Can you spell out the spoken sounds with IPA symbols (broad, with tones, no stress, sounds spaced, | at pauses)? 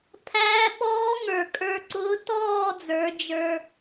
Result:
pʰ æː˧˥ ɓ ɔː˧˥ ŋ ə˞˩ kʼ ə˞˧ ǀ ʊː˧˥ t ɔː˥˨ d͡z ə˞˩˧ d͡ʒ ə˞˧